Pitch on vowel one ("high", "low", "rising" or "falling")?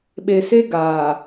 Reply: low